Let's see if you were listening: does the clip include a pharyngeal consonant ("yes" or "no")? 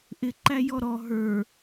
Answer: no